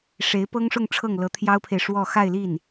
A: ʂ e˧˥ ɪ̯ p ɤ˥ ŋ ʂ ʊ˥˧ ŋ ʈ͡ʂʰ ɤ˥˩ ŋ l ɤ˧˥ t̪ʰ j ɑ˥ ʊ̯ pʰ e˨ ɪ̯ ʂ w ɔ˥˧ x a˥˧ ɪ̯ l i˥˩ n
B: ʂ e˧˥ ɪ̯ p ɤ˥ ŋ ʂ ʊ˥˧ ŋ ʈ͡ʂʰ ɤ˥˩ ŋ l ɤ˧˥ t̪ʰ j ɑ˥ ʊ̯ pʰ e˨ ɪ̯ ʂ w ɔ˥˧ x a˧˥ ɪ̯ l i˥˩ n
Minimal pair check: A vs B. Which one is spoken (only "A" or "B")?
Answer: A